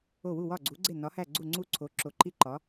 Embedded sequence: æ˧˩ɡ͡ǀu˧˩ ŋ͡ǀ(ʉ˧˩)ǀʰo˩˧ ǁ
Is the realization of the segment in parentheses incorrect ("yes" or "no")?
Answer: yes